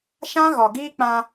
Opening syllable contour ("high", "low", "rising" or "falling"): high